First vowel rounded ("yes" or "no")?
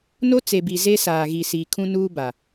yes